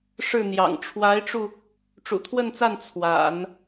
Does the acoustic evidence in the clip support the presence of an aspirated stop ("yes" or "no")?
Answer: yes